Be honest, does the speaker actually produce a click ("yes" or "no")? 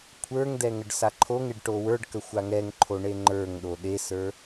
yes